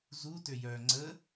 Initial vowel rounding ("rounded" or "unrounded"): rounded